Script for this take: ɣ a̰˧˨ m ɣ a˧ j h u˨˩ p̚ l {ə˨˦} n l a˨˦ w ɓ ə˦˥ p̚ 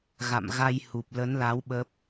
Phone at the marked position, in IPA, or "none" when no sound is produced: ə˨˦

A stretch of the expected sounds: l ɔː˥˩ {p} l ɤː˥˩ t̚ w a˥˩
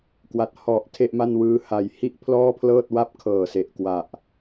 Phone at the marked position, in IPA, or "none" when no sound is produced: pʰ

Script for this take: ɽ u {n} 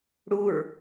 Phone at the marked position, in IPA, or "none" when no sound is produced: ɹ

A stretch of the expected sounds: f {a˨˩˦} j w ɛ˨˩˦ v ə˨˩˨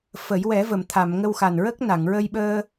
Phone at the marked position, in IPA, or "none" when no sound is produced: ə˨˩˦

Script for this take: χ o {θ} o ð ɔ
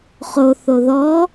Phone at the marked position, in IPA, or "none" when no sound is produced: θ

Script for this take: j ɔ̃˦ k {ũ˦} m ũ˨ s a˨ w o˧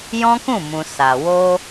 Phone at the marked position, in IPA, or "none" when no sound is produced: ũ˦˨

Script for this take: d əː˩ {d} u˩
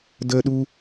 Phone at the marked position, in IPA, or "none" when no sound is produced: ɗ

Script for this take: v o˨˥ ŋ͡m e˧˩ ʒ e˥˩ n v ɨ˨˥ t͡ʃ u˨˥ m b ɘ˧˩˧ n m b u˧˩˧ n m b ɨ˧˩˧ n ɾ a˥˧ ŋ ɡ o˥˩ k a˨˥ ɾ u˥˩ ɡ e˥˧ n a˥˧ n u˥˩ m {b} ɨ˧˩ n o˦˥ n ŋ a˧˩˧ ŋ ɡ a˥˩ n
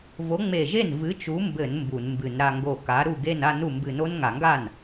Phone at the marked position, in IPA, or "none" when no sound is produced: b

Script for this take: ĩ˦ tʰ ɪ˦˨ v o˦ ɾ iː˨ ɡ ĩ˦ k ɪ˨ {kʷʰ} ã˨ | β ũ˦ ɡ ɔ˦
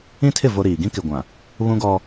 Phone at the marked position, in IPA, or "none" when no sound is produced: ɡʷ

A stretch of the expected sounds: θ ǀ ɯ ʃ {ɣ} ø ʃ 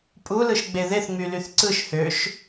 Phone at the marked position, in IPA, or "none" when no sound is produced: h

